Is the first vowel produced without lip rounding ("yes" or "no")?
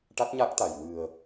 yes